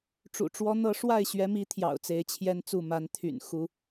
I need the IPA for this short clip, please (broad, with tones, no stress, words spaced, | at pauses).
ʈ͡ʂṵ˨˩ʈ͡ʂwɔ˦n̪ɤ˦ ʂwa˥˨ɪ̯ɕɥɛ˨˦mi˨˦ t̪ʰjɑ̰˨˩ʊ̯t͡se˨˦ɪ̯t͡ɕʰjɛ˦nt͡su˥˨ ma˨˦nt̪ʰy̰˨˩n xu˦